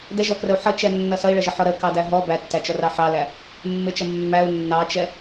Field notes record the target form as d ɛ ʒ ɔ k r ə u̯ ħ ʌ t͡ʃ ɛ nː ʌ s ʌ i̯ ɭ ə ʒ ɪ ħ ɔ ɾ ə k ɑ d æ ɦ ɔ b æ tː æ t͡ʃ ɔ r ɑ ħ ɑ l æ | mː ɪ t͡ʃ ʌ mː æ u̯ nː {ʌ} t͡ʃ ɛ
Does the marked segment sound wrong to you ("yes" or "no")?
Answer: yes